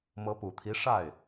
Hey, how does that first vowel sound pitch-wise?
rising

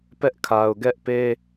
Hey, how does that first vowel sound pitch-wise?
high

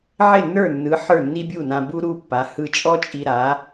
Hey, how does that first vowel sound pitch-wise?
falling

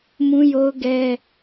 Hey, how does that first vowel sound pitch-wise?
high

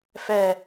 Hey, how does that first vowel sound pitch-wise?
low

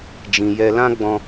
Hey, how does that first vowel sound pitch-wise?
low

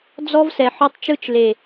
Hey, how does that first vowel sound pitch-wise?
high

